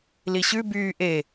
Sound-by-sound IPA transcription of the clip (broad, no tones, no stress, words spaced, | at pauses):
liɕʉ byː ʔe